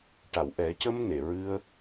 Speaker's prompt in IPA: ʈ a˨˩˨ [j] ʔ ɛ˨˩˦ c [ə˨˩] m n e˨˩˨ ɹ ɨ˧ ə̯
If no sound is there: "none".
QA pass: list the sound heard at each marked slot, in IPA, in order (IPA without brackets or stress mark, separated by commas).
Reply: w, ə˧